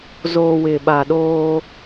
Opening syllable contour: low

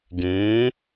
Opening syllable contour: rising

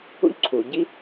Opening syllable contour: high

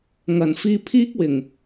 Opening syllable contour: low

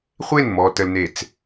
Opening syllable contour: falling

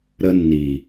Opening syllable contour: high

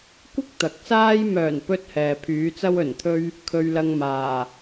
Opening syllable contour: high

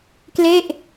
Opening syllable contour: falling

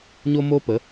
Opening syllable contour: high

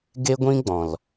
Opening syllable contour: high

